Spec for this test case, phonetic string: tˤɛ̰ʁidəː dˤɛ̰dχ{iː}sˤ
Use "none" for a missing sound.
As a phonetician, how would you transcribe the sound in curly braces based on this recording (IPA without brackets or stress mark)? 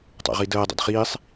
iː